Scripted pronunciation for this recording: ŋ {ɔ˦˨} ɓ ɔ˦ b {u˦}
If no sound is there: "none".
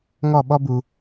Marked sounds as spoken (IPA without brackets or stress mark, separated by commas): ɔ˦˨, u˨